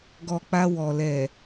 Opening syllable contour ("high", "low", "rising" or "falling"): low